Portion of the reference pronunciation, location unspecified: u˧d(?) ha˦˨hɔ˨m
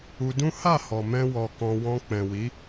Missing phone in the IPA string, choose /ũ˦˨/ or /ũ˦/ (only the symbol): ũ˦